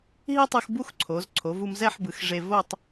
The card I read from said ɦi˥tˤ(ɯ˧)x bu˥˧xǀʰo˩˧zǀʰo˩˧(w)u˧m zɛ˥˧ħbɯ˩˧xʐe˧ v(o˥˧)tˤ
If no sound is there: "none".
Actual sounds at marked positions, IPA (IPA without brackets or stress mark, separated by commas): ɯ˧, v, o˥˧